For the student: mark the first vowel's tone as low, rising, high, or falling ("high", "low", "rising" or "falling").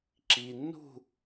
low